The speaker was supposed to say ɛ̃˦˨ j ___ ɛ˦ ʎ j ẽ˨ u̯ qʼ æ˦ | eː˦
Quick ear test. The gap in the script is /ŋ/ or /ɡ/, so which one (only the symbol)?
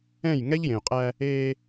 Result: ŋ